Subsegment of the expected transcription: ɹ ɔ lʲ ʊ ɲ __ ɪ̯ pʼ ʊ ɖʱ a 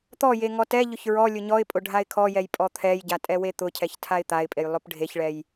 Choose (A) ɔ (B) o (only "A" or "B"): A